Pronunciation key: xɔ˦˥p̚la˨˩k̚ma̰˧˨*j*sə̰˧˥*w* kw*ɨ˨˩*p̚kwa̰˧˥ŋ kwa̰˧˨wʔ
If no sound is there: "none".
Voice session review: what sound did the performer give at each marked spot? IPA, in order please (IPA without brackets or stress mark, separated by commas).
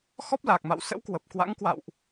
w, w, ə˨˩